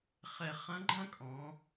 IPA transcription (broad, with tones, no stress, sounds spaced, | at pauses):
χ ɛ˧ χ ɐ̃˧˥ ɡ͡ǃ ɐ̃˥ kʼ ɔ̃˩˧